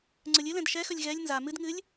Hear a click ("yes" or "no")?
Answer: yes